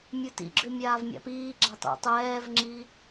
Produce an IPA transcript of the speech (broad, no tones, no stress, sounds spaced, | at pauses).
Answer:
mʲ u t ḭ ɡ͡ǁ ʏ mʲ aː v mʲ a̰ p iː ɡ͡ǁ a tˤ ḭ tˤ ɛː v ŋ͡ǁ i